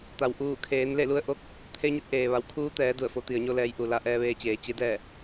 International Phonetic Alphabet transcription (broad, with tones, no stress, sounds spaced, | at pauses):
t̪ a˩ w ʔ uː˧˩ kʰ eː˩˧ n l e˥˨ l u˧˥ ə̯ ʔ o˧˥ k̚ | t̪ʰ e˧˥ ɲ e˧˥ t̚ ʔ eː˩ ʋ a˩˧ w kʰ uː˧˥ t̪ ɛː˩˧ d u˧˩ ə̯ f o˩˧ t̪ i˩ ə̯ ɲ o˧ l ɛː˩˧ j ʔ u˩ l a˧ ʔ ɛː˧ ʋ eː˧ t͡ɕ eː˩˧ t͡ɕ e˧˥ d ɛː˥˨